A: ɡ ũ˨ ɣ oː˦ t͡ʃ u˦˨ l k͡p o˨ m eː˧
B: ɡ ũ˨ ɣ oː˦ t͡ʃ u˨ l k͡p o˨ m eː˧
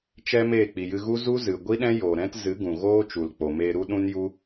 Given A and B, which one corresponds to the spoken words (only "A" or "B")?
B